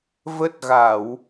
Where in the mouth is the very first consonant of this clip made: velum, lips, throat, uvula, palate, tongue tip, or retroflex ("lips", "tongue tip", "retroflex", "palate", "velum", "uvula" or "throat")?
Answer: lips